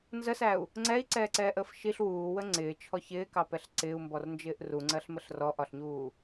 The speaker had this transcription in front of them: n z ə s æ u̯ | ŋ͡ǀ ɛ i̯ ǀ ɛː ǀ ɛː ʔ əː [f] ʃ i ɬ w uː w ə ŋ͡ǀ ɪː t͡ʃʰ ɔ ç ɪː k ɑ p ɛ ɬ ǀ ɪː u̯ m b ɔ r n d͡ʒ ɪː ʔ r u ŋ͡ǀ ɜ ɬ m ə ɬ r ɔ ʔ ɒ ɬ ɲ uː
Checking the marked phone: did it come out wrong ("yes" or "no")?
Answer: no